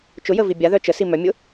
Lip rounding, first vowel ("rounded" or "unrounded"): rounded